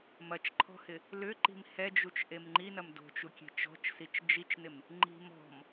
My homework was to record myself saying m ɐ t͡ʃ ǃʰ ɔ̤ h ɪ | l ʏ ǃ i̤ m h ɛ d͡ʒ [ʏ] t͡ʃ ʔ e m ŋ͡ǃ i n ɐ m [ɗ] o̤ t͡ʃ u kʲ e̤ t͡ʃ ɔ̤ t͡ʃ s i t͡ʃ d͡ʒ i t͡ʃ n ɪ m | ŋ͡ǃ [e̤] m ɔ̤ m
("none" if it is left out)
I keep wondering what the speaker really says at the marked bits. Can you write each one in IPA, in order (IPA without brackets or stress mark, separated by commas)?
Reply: u, d, i̤